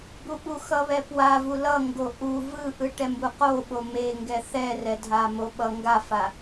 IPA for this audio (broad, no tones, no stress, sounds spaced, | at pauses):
b u ɓ u x ʌ β ɛ p w a v u l ʌ ŋ ɡ o ʔ u v ɯ ʔ ɯ ʈ ɛ m b u q o ɓ o m e ŋ ɡ ɛ θ ɛ r ɛ dʱ a m o ɓ ʌ ŋ ɡ a f a